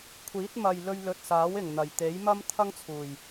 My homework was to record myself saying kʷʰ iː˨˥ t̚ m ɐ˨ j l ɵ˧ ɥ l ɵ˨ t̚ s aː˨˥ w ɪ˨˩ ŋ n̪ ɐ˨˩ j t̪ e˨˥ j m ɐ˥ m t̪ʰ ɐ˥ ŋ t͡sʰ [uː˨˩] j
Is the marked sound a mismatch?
no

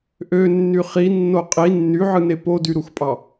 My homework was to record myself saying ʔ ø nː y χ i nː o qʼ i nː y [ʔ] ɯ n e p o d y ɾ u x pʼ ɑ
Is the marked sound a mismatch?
yes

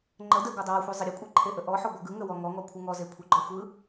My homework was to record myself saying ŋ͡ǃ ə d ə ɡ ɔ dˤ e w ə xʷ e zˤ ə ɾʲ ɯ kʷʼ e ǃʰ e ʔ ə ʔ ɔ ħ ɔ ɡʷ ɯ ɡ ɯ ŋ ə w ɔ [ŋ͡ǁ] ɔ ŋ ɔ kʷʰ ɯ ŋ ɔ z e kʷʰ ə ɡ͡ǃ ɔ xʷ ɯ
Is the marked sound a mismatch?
yes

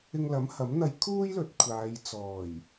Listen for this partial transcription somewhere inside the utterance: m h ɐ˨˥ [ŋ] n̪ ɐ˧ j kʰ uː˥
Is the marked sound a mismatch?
yes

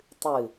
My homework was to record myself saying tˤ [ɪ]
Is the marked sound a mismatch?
yes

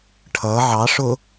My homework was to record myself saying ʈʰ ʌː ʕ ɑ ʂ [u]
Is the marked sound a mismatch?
yes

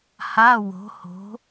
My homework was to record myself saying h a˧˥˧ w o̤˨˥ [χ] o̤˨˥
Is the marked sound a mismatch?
yes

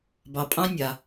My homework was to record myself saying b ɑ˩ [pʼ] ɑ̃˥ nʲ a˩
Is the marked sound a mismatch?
no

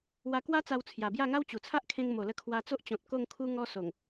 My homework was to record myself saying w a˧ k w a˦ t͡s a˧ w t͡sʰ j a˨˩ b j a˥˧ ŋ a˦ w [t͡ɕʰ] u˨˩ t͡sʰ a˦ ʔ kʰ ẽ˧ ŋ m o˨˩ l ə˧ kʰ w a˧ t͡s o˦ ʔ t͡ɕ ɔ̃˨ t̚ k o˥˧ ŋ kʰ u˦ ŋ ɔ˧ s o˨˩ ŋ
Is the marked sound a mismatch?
yes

